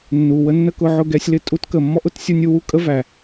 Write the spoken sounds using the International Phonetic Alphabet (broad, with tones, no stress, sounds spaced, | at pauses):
nː u˨ w ə˦ nː ə˦ k ʊ˧ ʕ ʊ˦˨ ɡ ɛ˧ sʲ l ɪ˧ tʼ u˧ t k ə˨ mː ɔ˦ ʔ ʊ˦ t sʲ ə˞˦ nʲ u˦ w u˦ kʼ ə˦ v æ˨